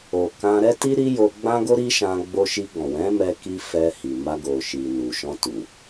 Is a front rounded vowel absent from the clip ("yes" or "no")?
yes